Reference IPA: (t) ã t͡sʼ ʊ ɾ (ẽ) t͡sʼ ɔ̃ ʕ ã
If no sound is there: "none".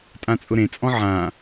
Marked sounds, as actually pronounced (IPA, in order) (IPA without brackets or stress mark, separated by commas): tʼ, ẽ